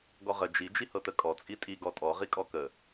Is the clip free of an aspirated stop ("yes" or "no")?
yes